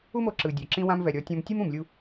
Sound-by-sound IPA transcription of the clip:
u˦mo˧ǁɯ˨ dʲo˨ ǁĩ˧wã˧m vɛ˨ɾʲɔ˨˦tʲɔ̃˧m tʲɯ˦mũ˨mlʲu˧

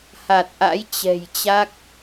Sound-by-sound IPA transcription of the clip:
ha˨˩t̚ʔa̰˧˥jt͡ɕɛ̤˨˩jt͡ɕa˦˥k̚

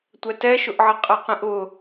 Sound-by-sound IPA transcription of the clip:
tʷɛtɛʃʊʔʕə qʼɛqĩʔʊ

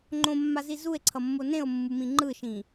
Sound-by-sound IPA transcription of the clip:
ŋ͡ǃõmːazi zue̯ǀʰʌmːo nẽo̯mːumĩ ŋ͡ǃɯʃĩ

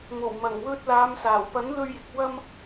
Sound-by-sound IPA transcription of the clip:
mo˨˩wmɐ˨˩ŋwɵ˧t̚laː˨˧m saː˨˩wpɐ˨˥nlɵ˧ɥjɪ˨k̚ wɐ˧m

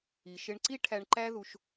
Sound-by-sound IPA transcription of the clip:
i˨ʃɪ˧ɳǀi˦ ʈʰæ˧ɳǃæ˦ ðu˧ʃ

